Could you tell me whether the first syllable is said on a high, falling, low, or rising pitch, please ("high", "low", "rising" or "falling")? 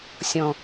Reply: low